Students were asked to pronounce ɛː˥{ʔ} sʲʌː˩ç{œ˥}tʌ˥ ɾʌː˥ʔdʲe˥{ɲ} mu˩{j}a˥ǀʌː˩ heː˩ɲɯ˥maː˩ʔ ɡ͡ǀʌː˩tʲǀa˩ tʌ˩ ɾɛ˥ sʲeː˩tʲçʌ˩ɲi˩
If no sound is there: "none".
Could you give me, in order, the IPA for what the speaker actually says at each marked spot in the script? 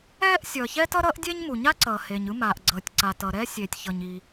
ʔ, ɛ˥, ɲ, ɲ

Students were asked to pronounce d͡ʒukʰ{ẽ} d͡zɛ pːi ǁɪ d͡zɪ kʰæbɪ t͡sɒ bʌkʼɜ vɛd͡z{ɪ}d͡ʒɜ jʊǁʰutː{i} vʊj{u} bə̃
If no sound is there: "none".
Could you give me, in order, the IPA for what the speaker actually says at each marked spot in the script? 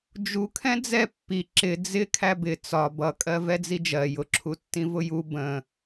ɛ̃, i, ĩ, u

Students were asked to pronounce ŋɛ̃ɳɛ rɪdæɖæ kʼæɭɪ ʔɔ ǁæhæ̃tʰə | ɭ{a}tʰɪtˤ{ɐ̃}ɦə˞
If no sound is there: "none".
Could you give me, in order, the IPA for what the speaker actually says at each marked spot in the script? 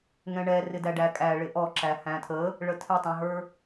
ə, ɑ̃

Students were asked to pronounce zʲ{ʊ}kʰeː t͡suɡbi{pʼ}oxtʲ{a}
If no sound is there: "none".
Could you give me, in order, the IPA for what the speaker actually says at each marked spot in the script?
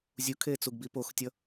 u, p, ʌ

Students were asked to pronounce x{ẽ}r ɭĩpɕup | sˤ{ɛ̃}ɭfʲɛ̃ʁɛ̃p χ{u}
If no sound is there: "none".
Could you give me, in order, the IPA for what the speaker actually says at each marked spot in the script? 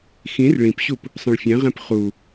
ĩ, ə̃, u

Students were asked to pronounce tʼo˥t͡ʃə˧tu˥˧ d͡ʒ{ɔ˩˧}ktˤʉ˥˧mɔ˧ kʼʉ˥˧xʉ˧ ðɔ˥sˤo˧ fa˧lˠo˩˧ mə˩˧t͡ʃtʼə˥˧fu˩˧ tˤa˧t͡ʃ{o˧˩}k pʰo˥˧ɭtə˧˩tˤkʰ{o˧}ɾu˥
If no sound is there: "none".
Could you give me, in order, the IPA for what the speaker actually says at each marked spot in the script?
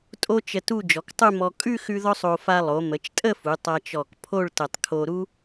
ɔ˩˧, ɔ˧˩, o˧

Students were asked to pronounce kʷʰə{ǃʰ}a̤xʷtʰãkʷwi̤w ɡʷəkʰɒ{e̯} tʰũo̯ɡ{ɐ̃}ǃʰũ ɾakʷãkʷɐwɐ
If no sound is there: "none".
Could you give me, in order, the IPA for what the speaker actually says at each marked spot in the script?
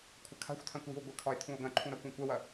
kʰ, e̯, ɐ̃

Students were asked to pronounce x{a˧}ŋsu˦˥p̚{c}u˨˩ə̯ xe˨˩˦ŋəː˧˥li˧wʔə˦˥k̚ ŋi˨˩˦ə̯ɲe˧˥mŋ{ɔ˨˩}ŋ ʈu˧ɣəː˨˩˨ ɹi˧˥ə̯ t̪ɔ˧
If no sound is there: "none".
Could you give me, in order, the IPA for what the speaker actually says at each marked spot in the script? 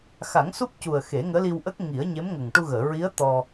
a˨˩˦, c, ə˨˩

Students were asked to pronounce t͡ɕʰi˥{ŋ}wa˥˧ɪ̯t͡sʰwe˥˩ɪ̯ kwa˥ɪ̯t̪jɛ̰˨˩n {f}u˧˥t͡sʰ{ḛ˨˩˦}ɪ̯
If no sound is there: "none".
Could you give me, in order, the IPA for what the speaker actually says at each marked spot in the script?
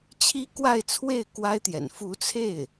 k, f, e˥˩

